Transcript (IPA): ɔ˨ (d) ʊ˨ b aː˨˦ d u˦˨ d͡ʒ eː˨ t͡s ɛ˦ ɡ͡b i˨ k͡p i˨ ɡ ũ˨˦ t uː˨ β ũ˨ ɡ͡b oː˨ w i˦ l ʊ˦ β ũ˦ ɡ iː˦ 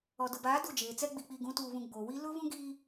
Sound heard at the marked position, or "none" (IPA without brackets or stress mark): d